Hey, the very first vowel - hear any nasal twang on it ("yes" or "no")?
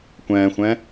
yes